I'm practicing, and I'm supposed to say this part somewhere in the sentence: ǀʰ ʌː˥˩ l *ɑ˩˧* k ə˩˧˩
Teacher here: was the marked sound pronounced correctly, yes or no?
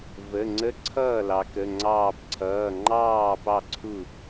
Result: yes